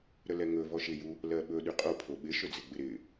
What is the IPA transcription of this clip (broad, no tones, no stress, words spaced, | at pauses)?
ɾəlɛŋɵ vɔʃɪju | lɜɓɵ ɗyqʼopʰo ɓɪʃɵ d͡zɪɡ͡bɪɾɪ